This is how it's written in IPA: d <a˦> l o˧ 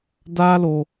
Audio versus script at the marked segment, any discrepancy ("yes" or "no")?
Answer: yes